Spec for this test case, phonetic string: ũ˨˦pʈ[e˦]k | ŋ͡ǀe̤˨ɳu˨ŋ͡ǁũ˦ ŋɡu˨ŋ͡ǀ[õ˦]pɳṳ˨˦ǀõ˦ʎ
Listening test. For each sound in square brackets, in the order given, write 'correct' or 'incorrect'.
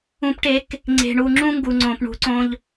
incorrect: e˨˦, incorrect: õ˨

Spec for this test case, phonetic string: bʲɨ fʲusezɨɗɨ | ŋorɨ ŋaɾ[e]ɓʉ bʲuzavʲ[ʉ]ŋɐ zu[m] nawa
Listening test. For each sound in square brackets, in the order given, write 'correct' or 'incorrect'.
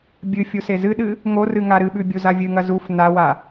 incorrect: ɨ, incorrect: ɨ, incorrect: f

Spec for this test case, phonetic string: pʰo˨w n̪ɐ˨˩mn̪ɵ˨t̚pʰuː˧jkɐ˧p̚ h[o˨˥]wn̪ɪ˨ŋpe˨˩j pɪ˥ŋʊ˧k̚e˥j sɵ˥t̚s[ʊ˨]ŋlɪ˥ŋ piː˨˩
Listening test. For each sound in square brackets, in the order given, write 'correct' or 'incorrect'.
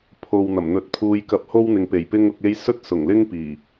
incorrect: o˥, incorrect: ʊ˨˩

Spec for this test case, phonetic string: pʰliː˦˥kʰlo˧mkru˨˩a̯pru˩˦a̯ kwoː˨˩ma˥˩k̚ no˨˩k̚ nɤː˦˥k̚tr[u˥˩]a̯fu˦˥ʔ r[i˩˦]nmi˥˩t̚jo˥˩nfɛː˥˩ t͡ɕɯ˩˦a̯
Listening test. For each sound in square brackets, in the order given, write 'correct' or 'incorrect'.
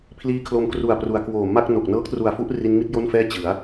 incorrect: u˨˩, incorrect: i˦˥

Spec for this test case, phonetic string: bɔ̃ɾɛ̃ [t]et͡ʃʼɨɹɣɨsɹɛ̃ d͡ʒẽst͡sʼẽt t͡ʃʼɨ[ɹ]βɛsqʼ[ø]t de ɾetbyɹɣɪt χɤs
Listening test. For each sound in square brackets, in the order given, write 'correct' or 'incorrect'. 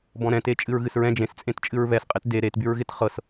correct, correct, incorrect: e

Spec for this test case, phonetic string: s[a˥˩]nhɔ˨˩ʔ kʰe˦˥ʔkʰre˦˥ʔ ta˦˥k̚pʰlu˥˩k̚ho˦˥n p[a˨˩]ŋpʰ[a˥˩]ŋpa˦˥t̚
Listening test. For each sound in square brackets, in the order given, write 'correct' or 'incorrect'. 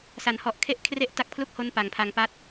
incorrect: a˩˦, correct, incorrect: a˧

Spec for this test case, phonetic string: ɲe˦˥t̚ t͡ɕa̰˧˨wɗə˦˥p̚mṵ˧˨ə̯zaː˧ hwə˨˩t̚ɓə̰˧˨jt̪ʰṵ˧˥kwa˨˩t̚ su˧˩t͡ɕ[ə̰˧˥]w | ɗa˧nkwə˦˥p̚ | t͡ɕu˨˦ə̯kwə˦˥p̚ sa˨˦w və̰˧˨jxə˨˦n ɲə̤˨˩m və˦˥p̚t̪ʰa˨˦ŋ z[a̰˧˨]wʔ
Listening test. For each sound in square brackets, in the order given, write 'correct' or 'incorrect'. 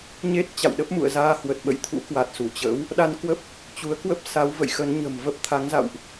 correct, correct

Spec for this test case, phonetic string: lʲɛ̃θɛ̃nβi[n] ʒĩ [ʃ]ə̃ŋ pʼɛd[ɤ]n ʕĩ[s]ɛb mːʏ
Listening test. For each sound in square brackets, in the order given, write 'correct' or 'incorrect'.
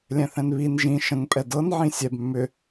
correct, correct, correct, incorrect: sʲ

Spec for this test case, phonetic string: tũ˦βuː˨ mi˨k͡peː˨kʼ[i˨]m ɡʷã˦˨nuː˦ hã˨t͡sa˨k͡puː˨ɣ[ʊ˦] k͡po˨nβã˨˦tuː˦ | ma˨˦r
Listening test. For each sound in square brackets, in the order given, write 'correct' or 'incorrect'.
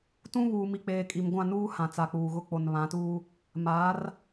correct, correct

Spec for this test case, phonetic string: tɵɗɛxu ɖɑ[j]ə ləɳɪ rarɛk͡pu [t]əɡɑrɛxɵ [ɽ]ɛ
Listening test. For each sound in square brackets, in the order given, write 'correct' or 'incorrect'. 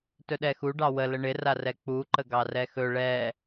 incorrect: w, incorrect: ǃ, incorrect: ɭ

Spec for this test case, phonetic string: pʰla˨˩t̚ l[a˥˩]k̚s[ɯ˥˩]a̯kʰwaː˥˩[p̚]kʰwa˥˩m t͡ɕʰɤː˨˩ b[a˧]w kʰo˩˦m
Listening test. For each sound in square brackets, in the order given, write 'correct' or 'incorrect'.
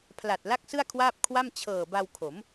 correct, correct, correct, correct

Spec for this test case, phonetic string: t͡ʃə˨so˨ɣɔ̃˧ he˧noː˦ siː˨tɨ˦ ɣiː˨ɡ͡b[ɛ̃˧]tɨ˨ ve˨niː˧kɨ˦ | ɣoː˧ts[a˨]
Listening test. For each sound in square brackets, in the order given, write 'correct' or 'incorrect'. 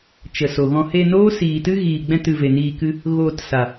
correct, correct

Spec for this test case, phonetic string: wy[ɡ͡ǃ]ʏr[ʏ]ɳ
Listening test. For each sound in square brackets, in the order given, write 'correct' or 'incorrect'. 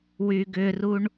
incorrect: ɡ, incorrect: u

